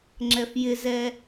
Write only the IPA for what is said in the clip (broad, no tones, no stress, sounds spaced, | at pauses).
ŋ͡ǁ ɛ f j ɪ z ɛ